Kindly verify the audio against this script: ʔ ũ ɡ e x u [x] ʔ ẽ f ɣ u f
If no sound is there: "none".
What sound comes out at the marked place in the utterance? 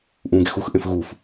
x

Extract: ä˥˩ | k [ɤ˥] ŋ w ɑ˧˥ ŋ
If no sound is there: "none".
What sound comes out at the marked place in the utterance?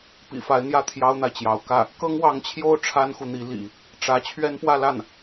ɤ˥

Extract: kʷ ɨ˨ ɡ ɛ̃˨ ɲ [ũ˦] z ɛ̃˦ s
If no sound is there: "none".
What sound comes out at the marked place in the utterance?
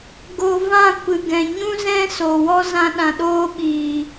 ũ˦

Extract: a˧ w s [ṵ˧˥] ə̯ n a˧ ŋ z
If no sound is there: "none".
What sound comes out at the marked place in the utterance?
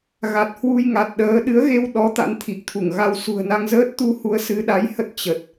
ṳ˨˩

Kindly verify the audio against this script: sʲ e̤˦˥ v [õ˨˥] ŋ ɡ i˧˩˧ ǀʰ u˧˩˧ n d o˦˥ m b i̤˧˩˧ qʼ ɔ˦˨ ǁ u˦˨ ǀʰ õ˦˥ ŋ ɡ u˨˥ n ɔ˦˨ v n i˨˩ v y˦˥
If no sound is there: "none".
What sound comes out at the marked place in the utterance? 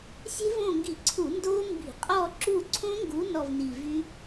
õ˦˨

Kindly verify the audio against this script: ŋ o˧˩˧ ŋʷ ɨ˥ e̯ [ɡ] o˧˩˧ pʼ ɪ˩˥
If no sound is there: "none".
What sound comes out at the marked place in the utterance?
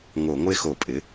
x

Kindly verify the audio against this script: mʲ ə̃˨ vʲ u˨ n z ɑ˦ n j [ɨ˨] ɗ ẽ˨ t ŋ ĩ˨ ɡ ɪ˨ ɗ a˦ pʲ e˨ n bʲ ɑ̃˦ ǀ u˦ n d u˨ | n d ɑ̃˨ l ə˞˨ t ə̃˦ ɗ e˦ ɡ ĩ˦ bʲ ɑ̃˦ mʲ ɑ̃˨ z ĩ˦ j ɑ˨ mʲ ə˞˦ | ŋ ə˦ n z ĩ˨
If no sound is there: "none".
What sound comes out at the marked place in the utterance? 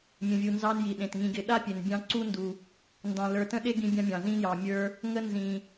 i˨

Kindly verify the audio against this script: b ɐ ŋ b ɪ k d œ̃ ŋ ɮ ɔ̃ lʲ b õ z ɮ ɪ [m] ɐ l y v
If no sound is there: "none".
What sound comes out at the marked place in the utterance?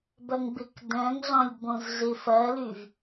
f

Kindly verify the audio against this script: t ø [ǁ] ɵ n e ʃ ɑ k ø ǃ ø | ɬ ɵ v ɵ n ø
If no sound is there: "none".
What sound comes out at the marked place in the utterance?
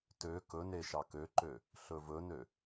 k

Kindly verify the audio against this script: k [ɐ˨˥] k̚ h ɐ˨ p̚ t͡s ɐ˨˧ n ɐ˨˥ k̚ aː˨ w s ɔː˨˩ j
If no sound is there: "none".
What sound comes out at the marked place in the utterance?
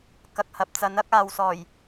ɐ˨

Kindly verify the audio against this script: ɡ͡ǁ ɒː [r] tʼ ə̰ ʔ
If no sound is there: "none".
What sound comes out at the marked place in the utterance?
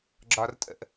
r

